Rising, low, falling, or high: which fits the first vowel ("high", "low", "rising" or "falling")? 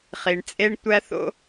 low